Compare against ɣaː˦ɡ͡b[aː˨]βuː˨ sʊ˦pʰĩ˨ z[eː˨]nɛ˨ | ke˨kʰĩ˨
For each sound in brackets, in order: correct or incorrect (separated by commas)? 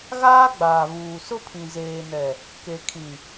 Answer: correct, correct